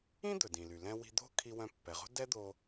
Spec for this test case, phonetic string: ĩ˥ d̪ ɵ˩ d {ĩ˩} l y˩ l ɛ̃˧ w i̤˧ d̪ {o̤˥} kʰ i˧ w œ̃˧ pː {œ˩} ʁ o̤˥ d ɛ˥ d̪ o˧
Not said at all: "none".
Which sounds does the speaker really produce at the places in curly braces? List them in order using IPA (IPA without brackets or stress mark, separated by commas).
ĩ˩, o̤˥, ɛ˩